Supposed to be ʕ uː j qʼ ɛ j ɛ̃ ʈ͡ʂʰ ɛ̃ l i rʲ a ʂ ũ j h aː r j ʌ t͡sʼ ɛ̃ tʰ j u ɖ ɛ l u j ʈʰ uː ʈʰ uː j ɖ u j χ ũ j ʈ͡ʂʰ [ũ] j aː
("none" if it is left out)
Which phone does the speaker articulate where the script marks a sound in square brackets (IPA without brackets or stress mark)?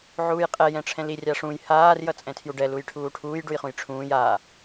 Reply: ũː